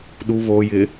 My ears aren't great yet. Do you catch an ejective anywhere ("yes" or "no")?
no